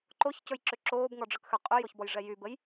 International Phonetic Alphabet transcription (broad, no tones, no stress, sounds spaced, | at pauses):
ǃ o ç c ɵ j ǁ ʏ ǁ oː b ŋ ɔ ɖ͡ʐ ɵ k x ə˞ qʼ y j o ç b ɔ j ʐ ɛ j y b ə j